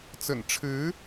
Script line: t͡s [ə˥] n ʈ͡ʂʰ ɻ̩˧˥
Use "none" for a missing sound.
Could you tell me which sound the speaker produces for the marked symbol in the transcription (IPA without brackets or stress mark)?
ə̰˨˩